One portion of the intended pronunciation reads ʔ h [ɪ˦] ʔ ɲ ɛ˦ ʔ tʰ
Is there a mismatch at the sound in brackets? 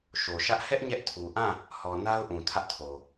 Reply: yes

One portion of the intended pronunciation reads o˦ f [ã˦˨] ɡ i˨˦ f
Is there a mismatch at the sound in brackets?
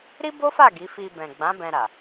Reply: yes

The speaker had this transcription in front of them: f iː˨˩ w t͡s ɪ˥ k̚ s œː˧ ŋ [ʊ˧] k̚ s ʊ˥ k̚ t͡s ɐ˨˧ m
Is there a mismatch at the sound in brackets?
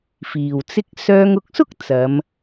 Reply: no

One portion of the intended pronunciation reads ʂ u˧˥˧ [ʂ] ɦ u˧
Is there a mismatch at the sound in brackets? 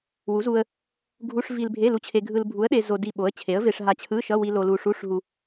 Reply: no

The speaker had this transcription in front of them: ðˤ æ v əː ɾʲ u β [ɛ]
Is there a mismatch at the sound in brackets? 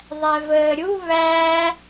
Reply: yes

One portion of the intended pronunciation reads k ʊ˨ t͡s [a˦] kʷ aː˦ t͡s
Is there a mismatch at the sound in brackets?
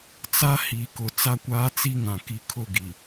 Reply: no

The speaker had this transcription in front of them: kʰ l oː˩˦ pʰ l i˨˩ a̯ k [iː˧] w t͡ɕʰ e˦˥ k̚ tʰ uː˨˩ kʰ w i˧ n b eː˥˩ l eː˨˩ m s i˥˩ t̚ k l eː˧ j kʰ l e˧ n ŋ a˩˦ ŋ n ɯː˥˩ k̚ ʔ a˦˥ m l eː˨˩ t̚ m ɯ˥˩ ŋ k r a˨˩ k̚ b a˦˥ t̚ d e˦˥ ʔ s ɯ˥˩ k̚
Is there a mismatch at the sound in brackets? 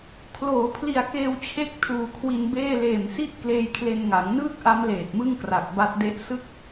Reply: yes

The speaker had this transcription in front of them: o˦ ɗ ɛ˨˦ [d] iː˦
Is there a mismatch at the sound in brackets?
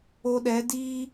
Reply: no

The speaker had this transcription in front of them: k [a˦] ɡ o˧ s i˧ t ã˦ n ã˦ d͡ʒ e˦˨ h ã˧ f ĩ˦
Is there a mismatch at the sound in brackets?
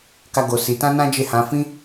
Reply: no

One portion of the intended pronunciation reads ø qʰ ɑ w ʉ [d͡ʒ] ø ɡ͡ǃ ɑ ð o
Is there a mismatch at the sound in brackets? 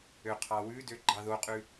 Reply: yes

